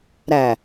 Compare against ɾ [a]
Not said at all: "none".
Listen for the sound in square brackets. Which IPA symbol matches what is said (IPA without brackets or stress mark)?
æ